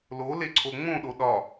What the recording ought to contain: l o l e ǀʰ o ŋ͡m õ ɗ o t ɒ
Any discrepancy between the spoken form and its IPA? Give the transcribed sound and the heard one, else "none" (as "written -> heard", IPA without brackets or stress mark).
t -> ɗ